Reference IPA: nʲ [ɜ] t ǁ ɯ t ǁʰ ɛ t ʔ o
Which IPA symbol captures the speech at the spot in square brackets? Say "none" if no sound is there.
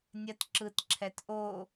ɜ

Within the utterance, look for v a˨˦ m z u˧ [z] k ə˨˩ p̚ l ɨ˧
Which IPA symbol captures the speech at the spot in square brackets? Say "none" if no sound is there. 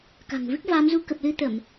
none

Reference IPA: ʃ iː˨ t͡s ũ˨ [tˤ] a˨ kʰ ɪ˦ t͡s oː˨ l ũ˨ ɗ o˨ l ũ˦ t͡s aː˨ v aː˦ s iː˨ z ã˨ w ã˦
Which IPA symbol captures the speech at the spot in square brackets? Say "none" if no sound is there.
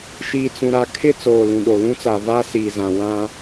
ɾ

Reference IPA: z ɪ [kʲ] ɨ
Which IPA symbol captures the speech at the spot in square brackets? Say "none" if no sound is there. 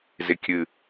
kʲ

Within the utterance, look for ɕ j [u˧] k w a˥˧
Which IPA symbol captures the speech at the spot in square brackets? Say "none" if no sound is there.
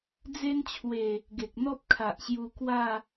u˧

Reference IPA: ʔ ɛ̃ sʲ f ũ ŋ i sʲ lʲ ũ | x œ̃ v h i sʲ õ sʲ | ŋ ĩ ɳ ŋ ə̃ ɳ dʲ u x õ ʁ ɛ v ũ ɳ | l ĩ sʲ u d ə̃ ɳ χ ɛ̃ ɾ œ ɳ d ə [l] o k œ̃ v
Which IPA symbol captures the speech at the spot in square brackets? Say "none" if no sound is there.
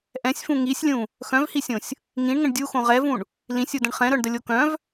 lʲ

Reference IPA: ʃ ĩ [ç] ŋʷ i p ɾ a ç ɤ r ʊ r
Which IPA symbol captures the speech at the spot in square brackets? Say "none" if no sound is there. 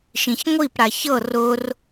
ç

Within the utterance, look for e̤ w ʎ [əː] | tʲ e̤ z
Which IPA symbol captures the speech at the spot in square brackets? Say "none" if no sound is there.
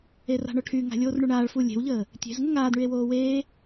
əː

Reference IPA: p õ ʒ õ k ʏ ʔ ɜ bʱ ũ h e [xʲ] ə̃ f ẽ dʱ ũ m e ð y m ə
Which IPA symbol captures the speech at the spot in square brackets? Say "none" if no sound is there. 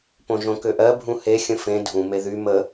xʲ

